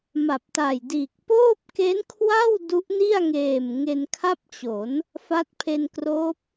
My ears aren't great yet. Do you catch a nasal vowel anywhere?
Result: no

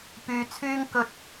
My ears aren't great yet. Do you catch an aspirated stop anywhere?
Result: yes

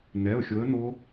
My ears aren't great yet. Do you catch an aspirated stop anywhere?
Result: no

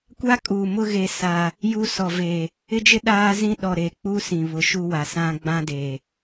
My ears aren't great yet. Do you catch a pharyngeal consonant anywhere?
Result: no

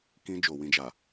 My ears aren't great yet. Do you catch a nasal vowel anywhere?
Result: yes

